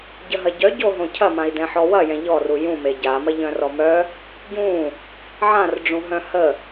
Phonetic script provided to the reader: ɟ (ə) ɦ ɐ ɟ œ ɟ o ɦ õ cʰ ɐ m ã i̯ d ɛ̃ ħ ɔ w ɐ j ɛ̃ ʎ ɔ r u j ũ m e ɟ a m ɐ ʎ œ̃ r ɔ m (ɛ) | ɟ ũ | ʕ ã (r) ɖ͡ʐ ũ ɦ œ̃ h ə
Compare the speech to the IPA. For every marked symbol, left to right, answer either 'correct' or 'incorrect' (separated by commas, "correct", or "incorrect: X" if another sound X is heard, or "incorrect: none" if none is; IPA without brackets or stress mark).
correct, incorrect: œ, correct